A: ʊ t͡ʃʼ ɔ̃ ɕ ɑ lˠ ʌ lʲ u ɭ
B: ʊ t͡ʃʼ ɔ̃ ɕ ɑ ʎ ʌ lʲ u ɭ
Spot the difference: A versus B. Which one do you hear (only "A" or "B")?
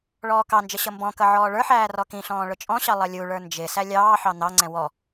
A